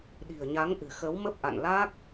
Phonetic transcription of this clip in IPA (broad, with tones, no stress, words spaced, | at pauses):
ɗi̤˨˩ə̯ɲa˨˦ŋ ʔɨ̤˨˩xə˨˦wmə˦˥p̚ʔa̰˧˨n la˦˥k̚